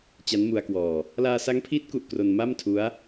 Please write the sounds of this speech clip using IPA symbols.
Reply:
t͡ɕ a˦˥ n m u˧ a̯ k w ɔː˨˩ | l aː˧ s a˦˥ ŋ pʰ iː˦˥ t̚ k u˨˩ ʔ k r o˧ n m a˥˩ m tʰ u˦˥ a̯

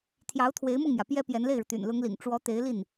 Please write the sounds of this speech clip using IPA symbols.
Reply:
t̪ʰ j ɑ˧˥ ʊ̯ t̪ʰ w e˧˥ ɪ̯ m ʊ˥˩ ŋ m j ä˩ p j ɛ˥ p j ɛ˧˥ n l e˥˩ ɪ̯ ɻ u˩ t̪ y̰˨˩ n l ʊ˧˥ ŋ l ḭ˨˩ ŋ ʈ͡ʂ w ɔ˧˥ t̪ e˧˥ ɪ̯ l i˥˩ n

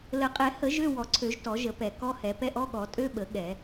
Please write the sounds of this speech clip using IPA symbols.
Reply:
l ə˨˩˦ qʼ ɛ˨˩˦ h ə˨˩˦ ʒ ø˧˥˧ w ɔ˨˩˦ ǀʰ ø˨˩˦ ʒ t ɔ˨˩˦ ʒ ə˨˩˦ p ɛ˨˩˦ k ɔ˧˥˧ h ɛ˨˩˦ p ɛ˧˥˧ ʔ ɔ˧˥˧ ɠ ɔ˨˩˦ tʼ ø˧˥˧ ɓ ə˨˩˦ ɠ ɛ˨˩˦

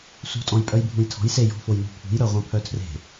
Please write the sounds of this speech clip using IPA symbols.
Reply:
s ṳ tʼ ɔ̃ j pʼ œ j bʱ ũ j tʰ ɔ̤ j s e j ɔ̤ f o j n ṳ pʰ ṳ j ɾ œ ʁʷ œ̃ pʰ œ tʰ r e̤

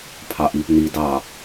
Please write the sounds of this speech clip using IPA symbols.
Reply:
pʰ ɑ ʔ i p n i d ɑ

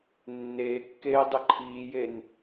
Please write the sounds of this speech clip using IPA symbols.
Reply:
nː eː kː eː dˤ ɯ ǃʰ iː j e n

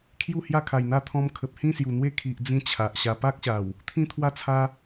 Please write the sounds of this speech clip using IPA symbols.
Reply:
kʰ j u˥˧ h j a˥˧ kʰ a˨˩ j n̪ a˥˧ t̪ʰ ɔ̃˧ m kʰ ə˨ p̚ h ĩ˥˧ s j u˨˩ n̪ w e˥˧ kʰ i˨ ʔ d͡z ĩ˧ t͡ɕʰ a˨ ʔ ɕ a˧ p a˦ k̚ ɕ a˨˩ w | t̪ʰ ĩ˦ t̪ʰ w a˥˧ t͡sʰ a˦

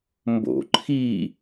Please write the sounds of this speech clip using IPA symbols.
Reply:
m b o̰ ǃʰ i

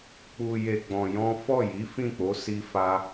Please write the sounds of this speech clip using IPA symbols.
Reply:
k͡p u˧ j e˧ ɡ͡b ɔ̃˧ j ɔ̃˦ f ɔ˦˨ j i˨˦ f ĩ˦˨ k͡p o˨˦ s i˦ f a˦

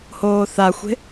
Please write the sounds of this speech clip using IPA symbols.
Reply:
h oː θ a xʷ e̤

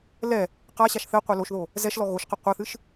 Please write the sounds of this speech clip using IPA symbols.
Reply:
l ɛ | q a ɕ a ʃ θ ɘ qʷ ɛ l o ʃ ð o | z ɛ ʃ l ɔ ɣ o ʃ q ɘ qʷ ɐ θ ɨ ʃ

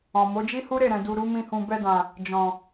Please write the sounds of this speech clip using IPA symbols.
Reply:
ɔ̃˨ m o˨˦ d͡ʒ i˦ h u˦ ɾ e˦˨ ɾ ɛ̃˨ d u˨ ɾ u˨˦ m ĩ˧ h ũ˨ b ɛ˧ d ã˨ | d͡ʒ ɔ̃˨

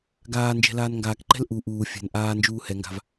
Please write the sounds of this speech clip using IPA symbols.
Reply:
ɡ aː n d͡ʒ ɛ̤ l aː n ŋ ɡ aː k ǃ ɛ̤ l ʔ u ʔ uː fʲ ɛ̤ n ʔ aː n d͡ʒ uː h ɛ ŋ ɡ a̤ v

